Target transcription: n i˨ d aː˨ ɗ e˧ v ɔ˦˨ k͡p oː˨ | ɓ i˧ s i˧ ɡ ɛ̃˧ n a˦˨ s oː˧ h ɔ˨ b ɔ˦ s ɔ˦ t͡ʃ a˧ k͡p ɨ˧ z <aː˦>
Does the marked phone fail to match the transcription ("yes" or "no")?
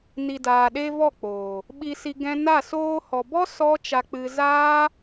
no